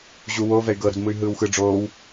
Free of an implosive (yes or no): yes